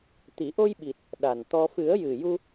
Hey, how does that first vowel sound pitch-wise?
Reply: low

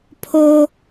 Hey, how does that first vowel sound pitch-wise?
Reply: high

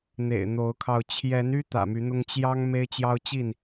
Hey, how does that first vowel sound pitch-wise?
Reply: low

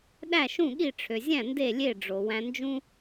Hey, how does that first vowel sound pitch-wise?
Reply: falling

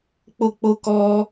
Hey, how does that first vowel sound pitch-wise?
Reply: falling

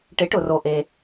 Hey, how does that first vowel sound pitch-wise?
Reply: rising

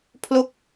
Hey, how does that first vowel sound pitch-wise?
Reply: falling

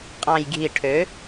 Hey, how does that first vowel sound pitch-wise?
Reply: low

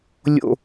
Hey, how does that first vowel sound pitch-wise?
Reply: low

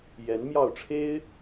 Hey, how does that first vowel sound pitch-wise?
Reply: rising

